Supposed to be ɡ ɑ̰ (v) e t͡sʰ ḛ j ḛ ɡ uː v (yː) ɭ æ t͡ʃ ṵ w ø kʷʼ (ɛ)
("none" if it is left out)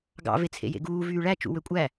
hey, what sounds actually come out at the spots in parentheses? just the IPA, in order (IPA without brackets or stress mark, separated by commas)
v, yː, æ